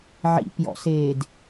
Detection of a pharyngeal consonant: present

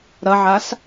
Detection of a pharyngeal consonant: present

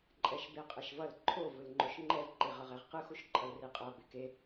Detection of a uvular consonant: present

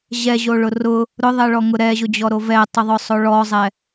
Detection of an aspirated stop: absent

